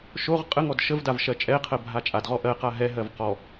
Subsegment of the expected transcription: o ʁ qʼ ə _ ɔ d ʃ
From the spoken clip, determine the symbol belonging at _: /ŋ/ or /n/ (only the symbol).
ŋ